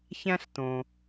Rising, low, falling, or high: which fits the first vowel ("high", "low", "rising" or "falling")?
high